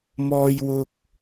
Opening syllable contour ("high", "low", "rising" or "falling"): high